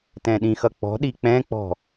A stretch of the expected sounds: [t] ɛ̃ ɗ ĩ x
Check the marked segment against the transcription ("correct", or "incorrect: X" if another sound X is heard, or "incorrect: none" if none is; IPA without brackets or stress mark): correct